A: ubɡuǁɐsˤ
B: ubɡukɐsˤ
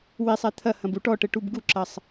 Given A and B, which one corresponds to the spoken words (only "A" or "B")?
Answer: A